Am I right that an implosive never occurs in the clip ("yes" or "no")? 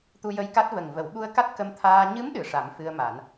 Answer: no